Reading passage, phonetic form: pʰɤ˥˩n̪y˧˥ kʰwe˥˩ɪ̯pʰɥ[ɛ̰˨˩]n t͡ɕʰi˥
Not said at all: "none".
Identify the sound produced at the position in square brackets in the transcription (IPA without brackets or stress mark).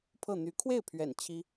ɛ̰˨˩